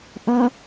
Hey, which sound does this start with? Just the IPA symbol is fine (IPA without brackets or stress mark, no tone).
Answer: ʔ